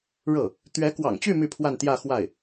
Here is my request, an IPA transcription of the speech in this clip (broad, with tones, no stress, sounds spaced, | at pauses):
ɻ ɤ˥˩ | t̪ ɥ ɛ˧˥ k w ɑ̰˨˩ ŋ t͡ɕ y˥˧ m y˥˧ pʰ w a˥˧ n t̪ j ä˥˧ x w a˥˩ ɪ̯